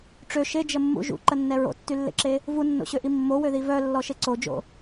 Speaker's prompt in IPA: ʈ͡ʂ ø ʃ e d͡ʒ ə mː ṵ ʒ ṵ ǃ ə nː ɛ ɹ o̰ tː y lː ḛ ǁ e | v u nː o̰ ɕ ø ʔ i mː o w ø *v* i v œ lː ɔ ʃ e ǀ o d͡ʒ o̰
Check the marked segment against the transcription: incorrect: ð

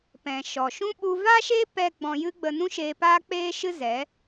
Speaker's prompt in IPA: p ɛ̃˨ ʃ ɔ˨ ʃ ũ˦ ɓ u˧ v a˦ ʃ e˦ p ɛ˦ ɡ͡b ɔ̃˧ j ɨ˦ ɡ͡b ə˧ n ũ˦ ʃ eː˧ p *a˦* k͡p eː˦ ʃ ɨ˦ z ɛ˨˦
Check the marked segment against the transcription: incorrect: aː˦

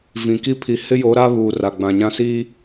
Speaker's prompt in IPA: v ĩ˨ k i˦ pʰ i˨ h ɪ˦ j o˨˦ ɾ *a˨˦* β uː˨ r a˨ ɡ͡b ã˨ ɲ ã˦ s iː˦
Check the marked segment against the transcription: incorrect: a˦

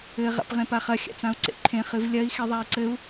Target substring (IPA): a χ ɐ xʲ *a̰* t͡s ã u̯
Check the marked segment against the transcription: correct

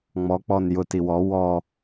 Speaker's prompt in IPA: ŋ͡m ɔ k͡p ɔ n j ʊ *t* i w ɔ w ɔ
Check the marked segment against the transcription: correct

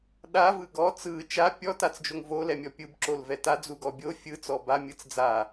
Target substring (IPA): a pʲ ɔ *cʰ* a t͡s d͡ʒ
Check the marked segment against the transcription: incorrect: t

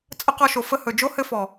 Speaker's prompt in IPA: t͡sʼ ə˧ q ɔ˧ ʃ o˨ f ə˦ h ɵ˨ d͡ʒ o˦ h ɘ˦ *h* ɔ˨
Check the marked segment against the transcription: incorrect: f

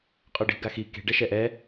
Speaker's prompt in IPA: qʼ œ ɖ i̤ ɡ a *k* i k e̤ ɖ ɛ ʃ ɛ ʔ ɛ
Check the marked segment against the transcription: incorrect: x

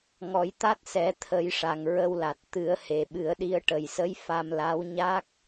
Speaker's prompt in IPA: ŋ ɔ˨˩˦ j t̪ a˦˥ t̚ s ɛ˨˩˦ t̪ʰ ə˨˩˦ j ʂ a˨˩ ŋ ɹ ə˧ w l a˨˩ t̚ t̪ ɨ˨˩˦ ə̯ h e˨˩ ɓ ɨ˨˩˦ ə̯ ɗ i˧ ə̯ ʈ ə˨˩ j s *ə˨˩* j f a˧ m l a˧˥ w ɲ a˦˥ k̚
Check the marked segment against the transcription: incorrect: ə˧˥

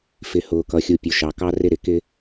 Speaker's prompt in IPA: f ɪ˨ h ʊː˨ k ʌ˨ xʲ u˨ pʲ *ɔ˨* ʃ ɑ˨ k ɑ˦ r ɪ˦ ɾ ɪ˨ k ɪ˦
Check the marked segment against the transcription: incorrect: ʊ˨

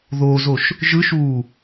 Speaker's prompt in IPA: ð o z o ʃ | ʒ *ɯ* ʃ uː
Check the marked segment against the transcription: correct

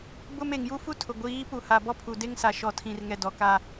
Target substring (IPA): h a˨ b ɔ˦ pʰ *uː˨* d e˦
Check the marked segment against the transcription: incorrect: u˨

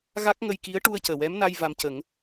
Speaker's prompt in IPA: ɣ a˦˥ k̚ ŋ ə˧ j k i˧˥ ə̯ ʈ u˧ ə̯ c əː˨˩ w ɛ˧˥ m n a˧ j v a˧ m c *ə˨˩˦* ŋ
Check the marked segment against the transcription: correct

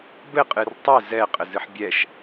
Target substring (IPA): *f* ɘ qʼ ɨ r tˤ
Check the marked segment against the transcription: incorrect: b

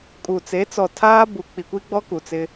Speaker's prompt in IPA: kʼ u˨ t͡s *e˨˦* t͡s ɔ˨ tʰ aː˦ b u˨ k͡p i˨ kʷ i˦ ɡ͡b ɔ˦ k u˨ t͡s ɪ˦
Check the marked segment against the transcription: correct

